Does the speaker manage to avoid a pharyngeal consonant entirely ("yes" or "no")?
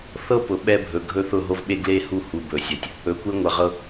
yes